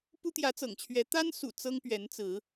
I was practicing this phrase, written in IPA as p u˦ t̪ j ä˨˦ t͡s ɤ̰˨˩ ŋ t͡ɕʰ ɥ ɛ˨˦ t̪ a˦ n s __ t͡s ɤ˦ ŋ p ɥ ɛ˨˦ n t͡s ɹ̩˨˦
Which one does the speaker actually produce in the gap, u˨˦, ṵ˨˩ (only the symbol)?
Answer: ṵ˨˩